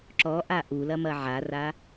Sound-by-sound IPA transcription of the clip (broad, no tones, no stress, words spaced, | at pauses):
ǁɔʔa ʔulɐmɐ ʕara